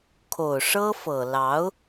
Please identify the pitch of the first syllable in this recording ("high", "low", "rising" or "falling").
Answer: low